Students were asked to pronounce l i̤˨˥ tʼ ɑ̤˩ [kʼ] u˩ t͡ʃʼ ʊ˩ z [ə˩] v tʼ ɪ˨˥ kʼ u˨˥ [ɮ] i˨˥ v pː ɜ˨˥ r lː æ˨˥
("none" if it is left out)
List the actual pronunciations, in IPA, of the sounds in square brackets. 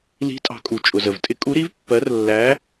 kʼ, ə˩, ɾ

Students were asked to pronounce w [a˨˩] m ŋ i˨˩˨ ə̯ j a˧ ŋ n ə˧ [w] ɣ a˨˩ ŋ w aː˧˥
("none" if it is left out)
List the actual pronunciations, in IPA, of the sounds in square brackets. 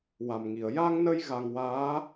a˨˩, j

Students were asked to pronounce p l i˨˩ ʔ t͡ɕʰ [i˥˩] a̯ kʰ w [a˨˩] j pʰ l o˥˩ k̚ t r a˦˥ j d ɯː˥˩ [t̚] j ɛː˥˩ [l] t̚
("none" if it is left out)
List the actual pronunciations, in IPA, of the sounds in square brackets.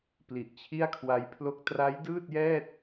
i˥˩, a˦˥, t̚, none

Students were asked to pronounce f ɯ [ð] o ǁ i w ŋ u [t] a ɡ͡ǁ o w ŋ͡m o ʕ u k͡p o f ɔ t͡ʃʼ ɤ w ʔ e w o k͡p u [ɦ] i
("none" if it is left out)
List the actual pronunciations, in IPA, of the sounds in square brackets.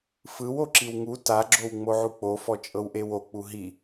w, t, ɦ

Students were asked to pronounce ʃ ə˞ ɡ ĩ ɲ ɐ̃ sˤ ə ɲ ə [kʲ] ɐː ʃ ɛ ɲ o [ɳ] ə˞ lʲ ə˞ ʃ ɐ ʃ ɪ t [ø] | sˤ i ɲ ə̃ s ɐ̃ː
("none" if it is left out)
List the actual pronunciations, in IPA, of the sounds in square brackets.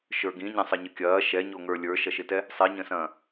kʲ, ŋ, ɛ

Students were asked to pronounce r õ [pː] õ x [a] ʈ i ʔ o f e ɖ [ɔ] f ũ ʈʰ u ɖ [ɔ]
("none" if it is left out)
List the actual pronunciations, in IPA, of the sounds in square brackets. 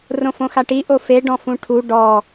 f, a, ɔ̃, ɔ

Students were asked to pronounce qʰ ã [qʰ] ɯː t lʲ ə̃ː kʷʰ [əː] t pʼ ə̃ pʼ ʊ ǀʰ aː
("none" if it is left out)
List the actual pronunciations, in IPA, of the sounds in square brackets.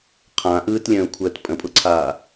ʔ, əː

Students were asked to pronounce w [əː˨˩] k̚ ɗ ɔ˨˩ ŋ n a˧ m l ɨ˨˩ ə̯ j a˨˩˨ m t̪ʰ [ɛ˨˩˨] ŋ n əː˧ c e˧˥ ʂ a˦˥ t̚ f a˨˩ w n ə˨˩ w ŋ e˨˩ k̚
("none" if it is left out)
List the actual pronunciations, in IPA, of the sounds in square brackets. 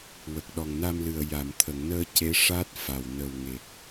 ə˨˩, ə˨˩˨

